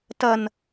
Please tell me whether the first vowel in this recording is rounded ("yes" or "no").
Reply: no